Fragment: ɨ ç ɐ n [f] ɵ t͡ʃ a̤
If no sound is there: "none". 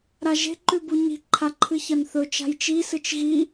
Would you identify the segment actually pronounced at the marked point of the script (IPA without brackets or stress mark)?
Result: θ